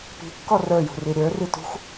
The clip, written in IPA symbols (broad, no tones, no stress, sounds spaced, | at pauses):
p i̤ kː ɔ r ə˞ j ṳ r i ɾʲ ə˞ r i t ṳ x